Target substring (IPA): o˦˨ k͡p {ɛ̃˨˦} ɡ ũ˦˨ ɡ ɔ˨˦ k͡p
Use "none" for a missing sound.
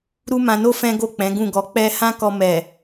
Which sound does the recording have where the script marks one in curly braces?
ɛ̃˨˦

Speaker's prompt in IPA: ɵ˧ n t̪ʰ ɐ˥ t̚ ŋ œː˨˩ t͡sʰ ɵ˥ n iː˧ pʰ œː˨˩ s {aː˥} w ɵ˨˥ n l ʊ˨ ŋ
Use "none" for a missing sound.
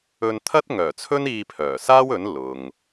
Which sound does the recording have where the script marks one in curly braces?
aː˥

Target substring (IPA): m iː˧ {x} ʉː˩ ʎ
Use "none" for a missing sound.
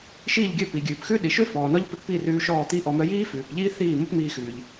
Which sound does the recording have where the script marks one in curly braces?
x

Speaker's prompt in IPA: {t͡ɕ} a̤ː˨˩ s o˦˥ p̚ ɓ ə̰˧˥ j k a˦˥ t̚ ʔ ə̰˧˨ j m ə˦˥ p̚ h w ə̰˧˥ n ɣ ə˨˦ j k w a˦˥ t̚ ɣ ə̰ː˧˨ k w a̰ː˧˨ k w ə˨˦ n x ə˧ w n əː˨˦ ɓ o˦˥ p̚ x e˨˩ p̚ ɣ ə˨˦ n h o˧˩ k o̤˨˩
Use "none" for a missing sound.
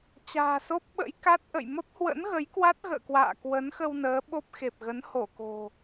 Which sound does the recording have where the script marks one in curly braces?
t͡ɕ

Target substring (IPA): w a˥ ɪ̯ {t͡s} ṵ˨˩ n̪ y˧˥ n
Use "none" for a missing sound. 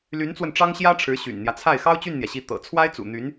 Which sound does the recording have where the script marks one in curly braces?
t͡s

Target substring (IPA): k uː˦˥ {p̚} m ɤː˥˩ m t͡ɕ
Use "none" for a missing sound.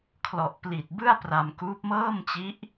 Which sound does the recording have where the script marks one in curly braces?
p̚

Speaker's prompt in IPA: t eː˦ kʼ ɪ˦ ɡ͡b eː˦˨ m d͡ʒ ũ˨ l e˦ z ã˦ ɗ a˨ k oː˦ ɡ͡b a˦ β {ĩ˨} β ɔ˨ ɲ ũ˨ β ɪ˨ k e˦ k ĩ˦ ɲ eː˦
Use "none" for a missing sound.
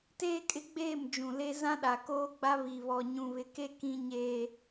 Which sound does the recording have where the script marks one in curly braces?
i˨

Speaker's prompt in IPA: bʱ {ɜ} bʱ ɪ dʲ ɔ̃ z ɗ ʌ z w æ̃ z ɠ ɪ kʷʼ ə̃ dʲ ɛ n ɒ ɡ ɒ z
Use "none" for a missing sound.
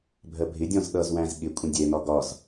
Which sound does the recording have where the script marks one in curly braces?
ɜ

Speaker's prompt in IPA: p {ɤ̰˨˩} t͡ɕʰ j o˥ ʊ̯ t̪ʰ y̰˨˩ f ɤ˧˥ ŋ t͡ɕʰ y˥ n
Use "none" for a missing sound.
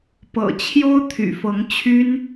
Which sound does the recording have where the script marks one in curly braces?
ɤ̰˨˩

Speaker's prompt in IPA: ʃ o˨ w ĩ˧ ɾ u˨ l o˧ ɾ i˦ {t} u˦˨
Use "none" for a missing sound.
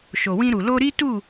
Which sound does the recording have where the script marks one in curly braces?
t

